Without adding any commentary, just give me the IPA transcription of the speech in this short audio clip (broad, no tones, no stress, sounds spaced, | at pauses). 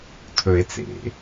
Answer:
tʰ ɵ e̯ t͡s ḛ